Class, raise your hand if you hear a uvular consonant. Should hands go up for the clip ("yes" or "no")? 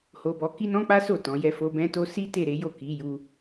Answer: no